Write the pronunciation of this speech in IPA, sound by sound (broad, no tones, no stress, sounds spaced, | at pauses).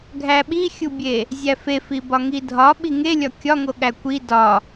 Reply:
ɡʱ æ ɓ i xʲ u bʲ e | zʲ æ f e f i b ɒ ŋ i dʱ ɒ ɓ i ŋ e lʲ ɒ kʲ ɒ ŋ o ɠ æ kʷ i d ɒ